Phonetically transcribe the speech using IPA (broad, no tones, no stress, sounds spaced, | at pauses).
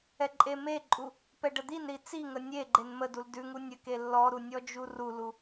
ɛ ǃʼ e m e ǃʼ u | p ɛ ɖ ə d̪ i n ɾ i t͡s i ŋ ə nʲ e ɡ͡ǃ e n m ə d u l d ʉ ŋ u nʲ ə k e lː ɔ ɾ u nʲ ɔ d͡ʒ u r u l u